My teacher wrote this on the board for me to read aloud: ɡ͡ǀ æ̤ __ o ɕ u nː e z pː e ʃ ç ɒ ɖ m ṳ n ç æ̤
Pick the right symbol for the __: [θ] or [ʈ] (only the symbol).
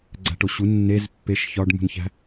ʈ